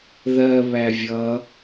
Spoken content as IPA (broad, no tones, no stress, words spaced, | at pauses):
ðɜ βævʲʌ